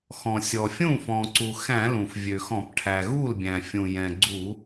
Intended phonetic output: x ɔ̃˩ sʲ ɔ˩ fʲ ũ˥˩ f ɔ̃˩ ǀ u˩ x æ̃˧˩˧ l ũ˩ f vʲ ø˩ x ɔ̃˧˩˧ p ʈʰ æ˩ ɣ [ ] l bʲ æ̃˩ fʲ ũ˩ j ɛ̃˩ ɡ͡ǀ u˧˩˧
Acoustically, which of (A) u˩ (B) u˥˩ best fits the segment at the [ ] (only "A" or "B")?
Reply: B